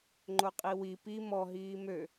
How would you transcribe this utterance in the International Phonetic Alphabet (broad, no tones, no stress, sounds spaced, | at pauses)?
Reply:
ŋ͡ǃ o qʼ i w i p i m ɔ ɦ iː m ø